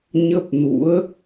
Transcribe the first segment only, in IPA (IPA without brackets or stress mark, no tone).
ɲ